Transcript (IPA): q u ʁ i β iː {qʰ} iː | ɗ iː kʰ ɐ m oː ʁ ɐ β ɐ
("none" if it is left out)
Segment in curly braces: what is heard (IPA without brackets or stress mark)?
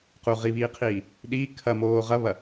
qʰ